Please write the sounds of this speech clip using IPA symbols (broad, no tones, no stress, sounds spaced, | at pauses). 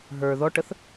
ɦ ə˞ ð ɔ ʈ ə θ